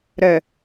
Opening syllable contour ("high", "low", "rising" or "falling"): low